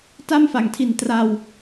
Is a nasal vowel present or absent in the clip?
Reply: absent